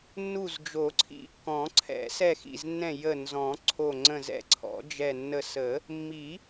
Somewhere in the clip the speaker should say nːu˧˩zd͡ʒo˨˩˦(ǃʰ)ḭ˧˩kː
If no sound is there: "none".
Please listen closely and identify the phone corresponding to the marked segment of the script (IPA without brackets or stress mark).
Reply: ǀʰ